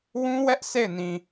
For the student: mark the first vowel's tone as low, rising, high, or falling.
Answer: high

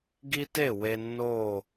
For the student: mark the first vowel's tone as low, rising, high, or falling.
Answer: high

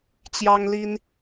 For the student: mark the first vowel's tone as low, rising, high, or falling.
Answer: high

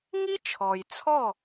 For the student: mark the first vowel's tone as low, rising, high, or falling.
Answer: high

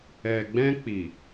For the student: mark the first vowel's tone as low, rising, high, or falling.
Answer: low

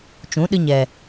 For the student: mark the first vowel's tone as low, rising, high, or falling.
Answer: rising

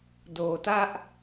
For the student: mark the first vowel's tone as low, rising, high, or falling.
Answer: low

